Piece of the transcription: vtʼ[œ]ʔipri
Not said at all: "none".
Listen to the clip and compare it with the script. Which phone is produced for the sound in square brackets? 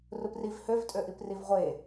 ø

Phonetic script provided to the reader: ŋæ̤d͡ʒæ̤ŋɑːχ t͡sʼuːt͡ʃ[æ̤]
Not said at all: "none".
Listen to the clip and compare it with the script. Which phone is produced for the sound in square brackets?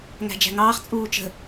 ə̤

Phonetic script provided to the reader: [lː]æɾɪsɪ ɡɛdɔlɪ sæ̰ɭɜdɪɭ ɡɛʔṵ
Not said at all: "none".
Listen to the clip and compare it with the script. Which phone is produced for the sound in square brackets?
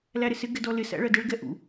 l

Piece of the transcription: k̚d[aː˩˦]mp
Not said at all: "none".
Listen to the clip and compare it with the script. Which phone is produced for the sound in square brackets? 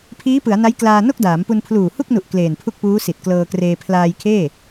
aː˩˦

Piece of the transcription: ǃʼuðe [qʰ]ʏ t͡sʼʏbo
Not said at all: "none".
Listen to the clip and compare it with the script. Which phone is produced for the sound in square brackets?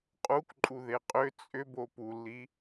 qʼ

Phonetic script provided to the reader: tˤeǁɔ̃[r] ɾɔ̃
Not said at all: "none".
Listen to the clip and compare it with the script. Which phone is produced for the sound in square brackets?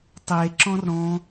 r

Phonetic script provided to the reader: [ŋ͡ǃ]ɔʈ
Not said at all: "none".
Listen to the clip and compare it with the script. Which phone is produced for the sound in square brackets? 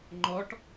ŋ͡ǃ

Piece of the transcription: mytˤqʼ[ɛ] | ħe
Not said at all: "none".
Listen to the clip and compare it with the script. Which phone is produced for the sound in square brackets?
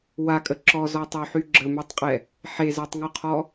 ɛ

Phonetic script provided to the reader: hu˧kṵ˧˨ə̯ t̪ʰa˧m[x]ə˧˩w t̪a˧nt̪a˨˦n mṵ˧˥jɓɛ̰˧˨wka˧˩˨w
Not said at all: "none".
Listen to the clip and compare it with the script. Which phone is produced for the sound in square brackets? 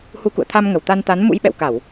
ŋ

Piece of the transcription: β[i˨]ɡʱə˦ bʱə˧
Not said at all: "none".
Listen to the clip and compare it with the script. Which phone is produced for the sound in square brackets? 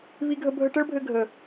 i˦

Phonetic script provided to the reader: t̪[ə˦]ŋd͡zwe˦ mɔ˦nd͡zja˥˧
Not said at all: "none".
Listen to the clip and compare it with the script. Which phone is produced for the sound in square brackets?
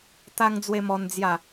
a˦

